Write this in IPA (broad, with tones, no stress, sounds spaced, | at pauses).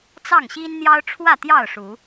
t͡s ɑ˥˨ ŋ ɕ i˦ n n̪ j ɑ˦ ʊ̯ ʈ͡ʂʰ w ä˥˨ t̪ j ɑ˥˨ ʊ̯ ʂ u˨˦